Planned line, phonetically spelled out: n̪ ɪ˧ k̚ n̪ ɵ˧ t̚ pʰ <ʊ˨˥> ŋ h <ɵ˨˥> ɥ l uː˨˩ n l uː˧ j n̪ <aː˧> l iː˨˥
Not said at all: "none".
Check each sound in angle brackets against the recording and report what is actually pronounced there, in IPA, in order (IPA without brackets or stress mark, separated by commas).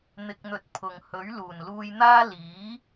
ʊ˨, ɵ˨˥, aː˥